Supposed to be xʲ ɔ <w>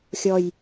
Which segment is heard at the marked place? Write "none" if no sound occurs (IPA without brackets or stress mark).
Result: j